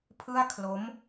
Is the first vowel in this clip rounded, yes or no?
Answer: no